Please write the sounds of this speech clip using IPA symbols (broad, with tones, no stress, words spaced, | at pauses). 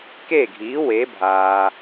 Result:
ke˥˩ɡʱiː˩˥ we˩˥bʱaː˩